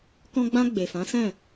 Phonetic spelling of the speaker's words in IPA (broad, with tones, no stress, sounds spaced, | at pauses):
k ɔ̃˧ ɡ͡b ã˧ ɡ͡b e˨ f ã˨˦ s ɛ̃˦˨